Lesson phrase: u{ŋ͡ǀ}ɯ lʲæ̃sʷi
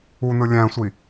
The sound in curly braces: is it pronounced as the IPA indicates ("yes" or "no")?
no